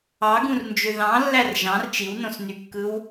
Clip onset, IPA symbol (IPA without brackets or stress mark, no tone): ɑ